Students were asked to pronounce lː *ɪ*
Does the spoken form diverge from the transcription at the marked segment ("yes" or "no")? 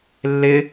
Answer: no